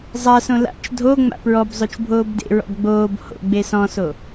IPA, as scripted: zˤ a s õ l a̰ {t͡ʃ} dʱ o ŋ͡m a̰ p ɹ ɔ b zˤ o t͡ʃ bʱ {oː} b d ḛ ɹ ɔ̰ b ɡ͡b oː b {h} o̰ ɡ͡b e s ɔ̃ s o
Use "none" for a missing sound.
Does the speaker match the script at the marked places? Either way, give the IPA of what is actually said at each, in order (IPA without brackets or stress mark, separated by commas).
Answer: t͡ʃ, oː, h